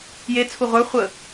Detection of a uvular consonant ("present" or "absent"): present